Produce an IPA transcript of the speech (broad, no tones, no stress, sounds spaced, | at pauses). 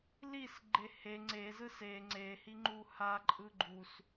l i s ɡ͡ǃ e h e ŋ͡ǀ e z ɯ s e ŋ͡ǀ e h i ŋ͡ǃ u h a ǃʼ ɯ ɡ͡ǃ u s